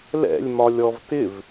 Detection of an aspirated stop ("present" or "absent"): absent